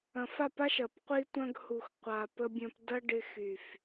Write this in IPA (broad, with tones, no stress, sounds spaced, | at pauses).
ɐ̃˨ f a˦˨ p a˦ ʃ ɐ˨ p qʷ i˦ tʷ ɐ̃˦ ɡ h u˨ x qʷ a˨ p ə˦ bʲ ɐ̃˦ p d ɐ˦ ɖ ɪ˦ x y˨ f